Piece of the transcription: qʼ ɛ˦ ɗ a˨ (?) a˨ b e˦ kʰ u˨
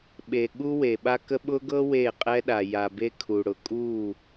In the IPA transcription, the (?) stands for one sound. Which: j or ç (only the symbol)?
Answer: j